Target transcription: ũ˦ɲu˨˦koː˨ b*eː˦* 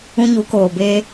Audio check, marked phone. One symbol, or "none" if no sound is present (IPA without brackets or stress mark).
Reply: eː˦